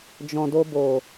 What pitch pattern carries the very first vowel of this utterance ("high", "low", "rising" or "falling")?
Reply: low